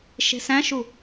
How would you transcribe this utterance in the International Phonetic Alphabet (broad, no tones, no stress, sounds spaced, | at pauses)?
ʃ e̤ s æ̃ ʃ u